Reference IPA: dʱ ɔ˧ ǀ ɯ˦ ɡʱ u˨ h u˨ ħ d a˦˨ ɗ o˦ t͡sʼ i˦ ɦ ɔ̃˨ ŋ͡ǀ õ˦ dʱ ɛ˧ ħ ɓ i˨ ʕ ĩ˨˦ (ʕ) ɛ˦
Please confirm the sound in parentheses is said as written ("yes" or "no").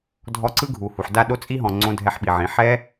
no